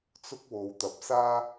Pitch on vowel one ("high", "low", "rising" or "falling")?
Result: high